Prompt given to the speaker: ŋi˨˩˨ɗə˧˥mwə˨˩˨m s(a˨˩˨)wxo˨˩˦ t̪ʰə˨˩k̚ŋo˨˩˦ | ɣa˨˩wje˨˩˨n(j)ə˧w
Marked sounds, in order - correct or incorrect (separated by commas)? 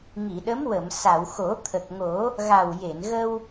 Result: correct, incorrect